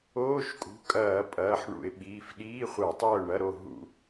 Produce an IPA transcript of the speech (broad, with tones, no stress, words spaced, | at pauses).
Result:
oː˧˥˧ʃkʼṳ˩˧˩ kʼɐː˧˩˧ pʼɐː˩˧˩ħɳṵ˧˩˧ɪ̯ɓiː˩˧˩f ɗiː˧˥˧χʷa˧˩˧ tˤɐː˥˨ʊ̯ɳɐ˧˥˧ɾo˥˨ ɦṵ˧˩˧